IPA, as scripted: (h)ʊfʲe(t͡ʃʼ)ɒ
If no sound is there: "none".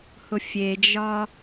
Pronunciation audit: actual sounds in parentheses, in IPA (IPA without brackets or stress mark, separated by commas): h, d͡ʒ